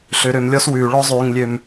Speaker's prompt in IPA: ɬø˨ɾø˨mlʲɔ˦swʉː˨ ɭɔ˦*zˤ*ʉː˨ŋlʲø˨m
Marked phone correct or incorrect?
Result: correct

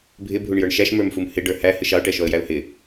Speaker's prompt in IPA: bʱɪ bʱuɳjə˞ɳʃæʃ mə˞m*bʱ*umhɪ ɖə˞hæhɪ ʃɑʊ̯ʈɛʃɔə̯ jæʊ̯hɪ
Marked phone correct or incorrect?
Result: incorrect: f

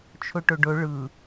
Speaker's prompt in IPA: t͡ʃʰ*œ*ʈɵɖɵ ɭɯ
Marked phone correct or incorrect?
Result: incorrect: ɵ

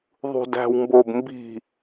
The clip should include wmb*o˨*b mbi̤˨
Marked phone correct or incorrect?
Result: correct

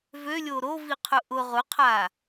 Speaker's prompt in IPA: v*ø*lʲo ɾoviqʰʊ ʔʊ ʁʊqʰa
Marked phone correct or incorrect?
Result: correct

